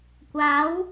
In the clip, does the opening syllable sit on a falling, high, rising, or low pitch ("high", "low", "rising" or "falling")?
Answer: rising